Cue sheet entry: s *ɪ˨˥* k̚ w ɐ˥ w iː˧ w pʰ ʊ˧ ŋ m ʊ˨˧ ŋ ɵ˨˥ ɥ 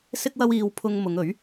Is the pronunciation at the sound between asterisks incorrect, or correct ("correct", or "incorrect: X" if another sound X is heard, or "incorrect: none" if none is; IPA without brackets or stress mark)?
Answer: incorrect: ɪ˥